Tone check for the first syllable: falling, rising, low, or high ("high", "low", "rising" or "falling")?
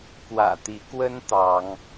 low